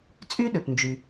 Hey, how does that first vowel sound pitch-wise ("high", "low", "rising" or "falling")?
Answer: high